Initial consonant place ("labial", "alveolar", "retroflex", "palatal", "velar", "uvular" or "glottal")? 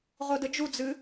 uvular